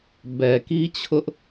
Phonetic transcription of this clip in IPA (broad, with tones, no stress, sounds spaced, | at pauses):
b ɛ˨ k i˦ t͡ɕʰ ʊ˦ ʔ